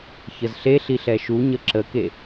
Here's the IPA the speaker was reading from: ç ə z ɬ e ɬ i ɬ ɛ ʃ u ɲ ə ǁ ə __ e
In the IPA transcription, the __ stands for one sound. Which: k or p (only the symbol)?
k